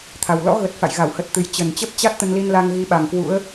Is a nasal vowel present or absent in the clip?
absent